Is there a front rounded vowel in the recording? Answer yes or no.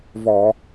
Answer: no